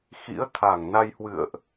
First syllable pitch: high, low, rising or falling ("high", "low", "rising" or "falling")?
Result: rising